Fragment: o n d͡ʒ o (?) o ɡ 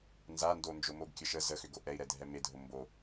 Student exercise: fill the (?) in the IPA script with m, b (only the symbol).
m